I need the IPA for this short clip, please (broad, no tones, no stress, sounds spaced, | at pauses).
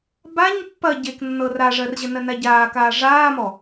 b a ɲ pː ɐ ɟ e k nː ɤ r a ʐ ɜ r ʑ ɘ n ɜ n a ɟ aː k aː ʐ aː m ɔ